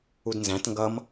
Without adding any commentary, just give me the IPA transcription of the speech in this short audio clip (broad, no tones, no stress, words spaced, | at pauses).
udnzæ̃t ŋɡʌm